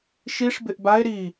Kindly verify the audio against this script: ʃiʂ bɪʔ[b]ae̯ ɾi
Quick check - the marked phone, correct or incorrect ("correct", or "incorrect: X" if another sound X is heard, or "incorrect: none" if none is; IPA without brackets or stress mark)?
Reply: correct